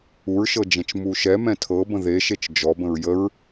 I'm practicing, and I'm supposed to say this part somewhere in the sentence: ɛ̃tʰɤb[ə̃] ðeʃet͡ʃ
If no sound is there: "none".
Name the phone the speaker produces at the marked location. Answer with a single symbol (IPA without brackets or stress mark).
ə̃